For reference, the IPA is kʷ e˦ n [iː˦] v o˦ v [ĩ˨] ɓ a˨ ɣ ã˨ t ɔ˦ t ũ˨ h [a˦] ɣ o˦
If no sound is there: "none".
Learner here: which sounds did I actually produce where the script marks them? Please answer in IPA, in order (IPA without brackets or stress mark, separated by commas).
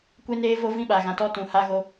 eː˦, ĩ˦, a˦